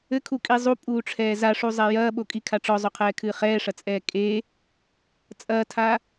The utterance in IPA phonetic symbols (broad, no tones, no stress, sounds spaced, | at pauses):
ɘ kʰ u kʼ i zˤ u pʼ uː ʈ͡ʂʰ ɛː z a ʂ u zˤ ɛ j ɐː ɓ o kʼ i kʰ a ʈ͡ʂ ɔ zˤ o qʰ ɛː kʰ ɨː χ ɛː ʂ ɐ t͡sʼ ɛː kʼ e | t͡sʼ ɐː tʰ a